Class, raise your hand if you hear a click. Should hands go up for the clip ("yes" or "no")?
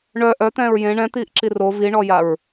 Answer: yes